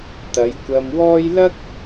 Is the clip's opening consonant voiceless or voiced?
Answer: voiceless